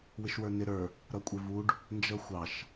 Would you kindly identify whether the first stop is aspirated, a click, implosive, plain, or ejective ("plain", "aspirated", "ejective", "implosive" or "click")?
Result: ejective